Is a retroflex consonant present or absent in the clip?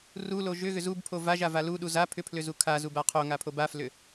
absent